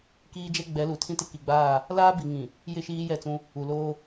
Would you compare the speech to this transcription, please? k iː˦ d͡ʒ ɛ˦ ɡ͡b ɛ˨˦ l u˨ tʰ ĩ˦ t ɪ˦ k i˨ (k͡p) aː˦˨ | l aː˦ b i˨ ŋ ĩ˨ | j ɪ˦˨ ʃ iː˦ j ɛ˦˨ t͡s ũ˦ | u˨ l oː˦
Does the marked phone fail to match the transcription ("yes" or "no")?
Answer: yes